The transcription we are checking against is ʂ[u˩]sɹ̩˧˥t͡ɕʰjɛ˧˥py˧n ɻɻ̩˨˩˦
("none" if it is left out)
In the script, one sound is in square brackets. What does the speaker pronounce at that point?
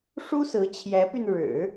u˥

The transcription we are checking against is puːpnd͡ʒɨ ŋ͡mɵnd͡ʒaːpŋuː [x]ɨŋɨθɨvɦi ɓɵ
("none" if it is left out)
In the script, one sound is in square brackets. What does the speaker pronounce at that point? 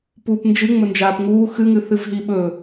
x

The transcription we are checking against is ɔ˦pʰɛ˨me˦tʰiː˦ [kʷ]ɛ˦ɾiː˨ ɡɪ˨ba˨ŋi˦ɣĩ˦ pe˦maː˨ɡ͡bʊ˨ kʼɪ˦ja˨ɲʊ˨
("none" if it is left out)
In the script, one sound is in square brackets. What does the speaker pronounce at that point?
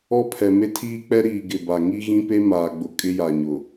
k͡p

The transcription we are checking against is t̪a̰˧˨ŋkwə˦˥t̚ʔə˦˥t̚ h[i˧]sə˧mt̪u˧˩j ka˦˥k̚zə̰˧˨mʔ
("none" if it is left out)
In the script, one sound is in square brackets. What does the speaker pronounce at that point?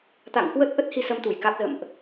i˧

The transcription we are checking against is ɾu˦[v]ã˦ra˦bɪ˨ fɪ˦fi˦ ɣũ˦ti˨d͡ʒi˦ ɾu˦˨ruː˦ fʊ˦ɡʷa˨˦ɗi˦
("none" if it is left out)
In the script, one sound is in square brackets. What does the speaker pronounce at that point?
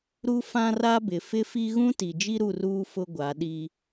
f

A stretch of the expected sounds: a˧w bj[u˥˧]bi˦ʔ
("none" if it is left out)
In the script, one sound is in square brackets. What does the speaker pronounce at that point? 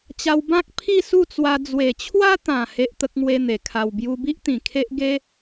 u˧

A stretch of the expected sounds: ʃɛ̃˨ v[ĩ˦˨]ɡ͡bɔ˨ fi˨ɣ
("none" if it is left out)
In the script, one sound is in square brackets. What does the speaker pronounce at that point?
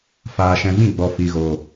ĩ˦˨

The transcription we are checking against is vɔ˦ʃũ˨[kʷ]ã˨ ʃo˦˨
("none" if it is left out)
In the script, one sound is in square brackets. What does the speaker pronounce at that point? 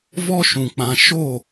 k͡p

